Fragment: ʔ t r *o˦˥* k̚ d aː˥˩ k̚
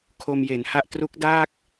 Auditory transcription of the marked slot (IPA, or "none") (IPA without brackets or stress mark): u˦˥